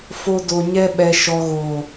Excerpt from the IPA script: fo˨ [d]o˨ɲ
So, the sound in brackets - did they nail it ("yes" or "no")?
yes